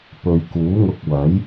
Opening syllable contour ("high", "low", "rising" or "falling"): low